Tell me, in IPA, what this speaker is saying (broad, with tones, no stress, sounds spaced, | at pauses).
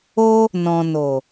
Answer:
o˦ | n ɔ̃˨ n o˨